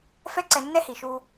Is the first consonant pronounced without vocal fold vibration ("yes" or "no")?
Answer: yes